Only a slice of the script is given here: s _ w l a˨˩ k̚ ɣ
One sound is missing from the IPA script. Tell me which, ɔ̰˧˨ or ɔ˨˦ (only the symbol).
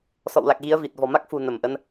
ɔ̰˧˨